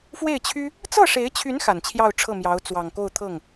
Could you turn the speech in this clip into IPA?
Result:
f w e˥˩ ɪ̯ t͡ɕʰ y˥ | t͡s ɤ˥˩ ʂ e˧˥ ɪ̯ t͡ɕʰ y˧˥ n x a˨˩ n t͡ɕʰ j ɑ˥˧ ʊ̯ ʈ͡ʂʰ ɤ˥˩ m j ɑ˧˥ ʊ̯ t͡s w ɑ˨˩ ŋ k o˥˧ ʊ̯ t̪ʰ ɤ˥˩ ŋ

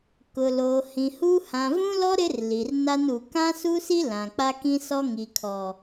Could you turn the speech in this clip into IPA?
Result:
k ʊ˨ l oː˨ h ĩ˨ h u˦ h ã˨ v ũ˦ l ɔ˦ ɾ ɪ˦ r l i˨ r n a˦ n u˨ k ã˦ s u˦ s i˦ l ã˨ k͡p a˦ k ĩ˦ s ɔ˦ ŋ i˨ kʰ ɔ˨

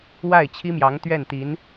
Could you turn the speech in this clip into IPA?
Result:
w a˥˩ ɪ̯ t͡ɕʰ i˥ m j ɑ˧˥ ŋ t̪ ɥ ɛ˥˩ n t̪ i˧˥ n

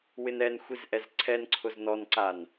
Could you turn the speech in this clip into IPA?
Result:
w ɪ n ɛ n xʷ i z ʔ ɛ z ǀʰ ɛ n ǀʰ ʊ z n ɔ n ǀ a n

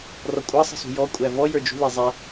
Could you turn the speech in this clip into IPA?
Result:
r ɔ kʷʼ ɑ sˤ ə̤ s ṳ j ɔ kʷʼ æ v ɔ j ə˞ d͡ʒ ṳ l i zˤ æ

